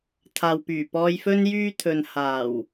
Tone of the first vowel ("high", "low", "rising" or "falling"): low